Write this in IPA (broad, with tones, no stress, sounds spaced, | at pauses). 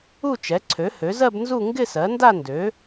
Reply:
u˥˧ t͡ʃ ɛ˩˥ ǀʰ ø˩˥ h ø˩˥ z ɜ˥˧ b n z u˥˧ ŋ ɡ ɪ˥˧ s ɜ˩˥ n d a˥˧ n d ø˩˥